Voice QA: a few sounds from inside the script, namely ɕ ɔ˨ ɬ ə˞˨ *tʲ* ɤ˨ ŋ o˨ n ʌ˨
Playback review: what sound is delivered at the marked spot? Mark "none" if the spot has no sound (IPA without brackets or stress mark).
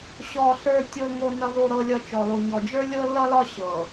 tʲ